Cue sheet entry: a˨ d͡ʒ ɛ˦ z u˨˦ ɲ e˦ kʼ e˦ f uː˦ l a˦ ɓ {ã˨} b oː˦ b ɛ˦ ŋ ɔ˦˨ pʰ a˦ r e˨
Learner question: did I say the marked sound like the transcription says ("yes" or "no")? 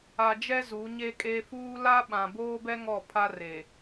yes